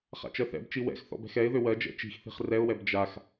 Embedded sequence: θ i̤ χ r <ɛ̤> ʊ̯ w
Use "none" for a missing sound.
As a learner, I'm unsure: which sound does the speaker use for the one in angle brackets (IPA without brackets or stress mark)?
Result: ɛ